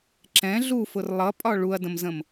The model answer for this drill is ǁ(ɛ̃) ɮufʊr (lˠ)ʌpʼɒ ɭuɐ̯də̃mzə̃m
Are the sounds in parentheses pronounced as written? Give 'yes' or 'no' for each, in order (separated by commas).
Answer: yes, yes